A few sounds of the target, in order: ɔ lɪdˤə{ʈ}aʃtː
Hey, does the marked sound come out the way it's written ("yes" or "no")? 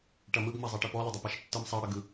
no